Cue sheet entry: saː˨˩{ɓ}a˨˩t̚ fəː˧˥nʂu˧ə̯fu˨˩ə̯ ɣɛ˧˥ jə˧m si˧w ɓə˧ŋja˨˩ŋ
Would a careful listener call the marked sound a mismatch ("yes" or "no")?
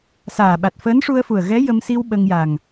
no